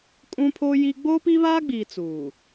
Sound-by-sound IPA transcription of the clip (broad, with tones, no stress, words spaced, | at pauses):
kʼũ˦pʰo˦ji˦ ɡ͡boː˦pi˦βaː˦ɡ͡biː˨ t͡suː˨